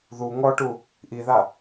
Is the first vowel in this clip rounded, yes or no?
yes